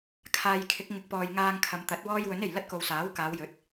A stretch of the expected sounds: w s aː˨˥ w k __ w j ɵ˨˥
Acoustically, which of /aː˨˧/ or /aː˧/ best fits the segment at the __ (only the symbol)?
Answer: aː˨˧